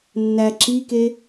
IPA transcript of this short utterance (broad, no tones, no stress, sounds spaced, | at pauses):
nː æ ǁ i k e